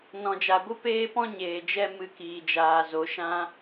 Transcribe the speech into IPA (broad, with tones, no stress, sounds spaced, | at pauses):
n ɔ̃˨ d͡ʒ a˨ ɡʷ ɨ˦ p eː˦ p ɔ̃˦ ɲ eː˨ d͡ʒ ɛ˦ m ɨ˧ k iː˨ d͡ʒ aː˨ z o˨˦ ʃ ã˧